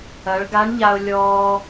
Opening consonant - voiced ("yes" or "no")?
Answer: yes